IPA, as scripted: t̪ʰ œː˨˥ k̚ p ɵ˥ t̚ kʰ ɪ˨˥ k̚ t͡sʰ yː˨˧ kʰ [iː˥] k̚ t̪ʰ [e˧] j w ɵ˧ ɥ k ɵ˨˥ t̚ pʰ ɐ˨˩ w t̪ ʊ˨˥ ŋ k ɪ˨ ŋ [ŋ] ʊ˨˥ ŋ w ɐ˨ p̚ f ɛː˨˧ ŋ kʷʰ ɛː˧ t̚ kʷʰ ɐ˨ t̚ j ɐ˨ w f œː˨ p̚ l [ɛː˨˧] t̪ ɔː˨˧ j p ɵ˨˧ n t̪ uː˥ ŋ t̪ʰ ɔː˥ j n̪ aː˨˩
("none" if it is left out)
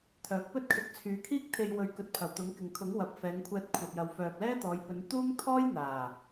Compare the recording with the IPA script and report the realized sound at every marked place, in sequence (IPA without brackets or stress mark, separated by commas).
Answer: iː˥, e˧, kʰ, ɛː˥